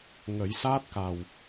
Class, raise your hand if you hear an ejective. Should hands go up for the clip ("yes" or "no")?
no